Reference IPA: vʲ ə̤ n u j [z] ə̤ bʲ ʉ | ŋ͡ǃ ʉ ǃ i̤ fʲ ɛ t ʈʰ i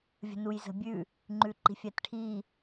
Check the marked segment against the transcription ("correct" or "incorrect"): correct